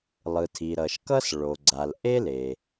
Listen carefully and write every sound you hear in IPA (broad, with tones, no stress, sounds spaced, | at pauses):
lˠ ɯ˩ tʰ i˩ ɾ ʌ˩ ʃ k ʌ˥ s ɭ o˩ ɡ͡ǀ a˩ l ʔ e˥ l e˩